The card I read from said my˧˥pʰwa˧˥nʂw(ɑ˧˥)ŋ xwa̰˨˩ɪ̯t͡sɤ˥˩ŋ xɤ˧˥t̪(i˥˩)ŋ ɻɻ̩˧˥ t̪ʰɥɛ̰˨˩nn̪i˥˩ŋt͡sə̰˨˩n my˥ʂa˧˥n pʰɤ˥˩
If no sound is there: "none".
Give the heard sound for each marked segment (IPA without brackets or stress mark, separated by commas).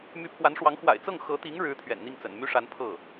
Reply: ɑ˧˥, i˧˥